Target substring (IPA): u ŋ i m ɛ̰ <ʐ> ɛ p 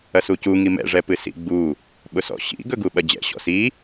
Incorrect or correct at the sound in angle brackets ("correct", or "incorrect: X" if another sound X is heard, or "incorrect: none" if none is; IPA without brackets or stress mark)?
correct